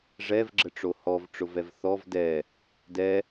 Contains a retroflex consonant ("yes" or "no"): yes